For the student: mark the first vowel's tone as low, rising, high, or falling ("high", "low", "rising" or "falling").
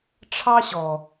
high